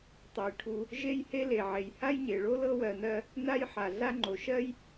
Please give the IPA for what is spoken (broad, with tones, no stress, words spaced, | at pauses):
tˤɤ˨j ʈʰu˨ | ʒe˥jhe˥le˩ ʕe˩jha˥jɲe˩ɭo˥ lɤ˥wɜ˨nɜ˦ | na˥jħa˩ ɮa˦ŋ͡ǃo˩ʃɜ˥j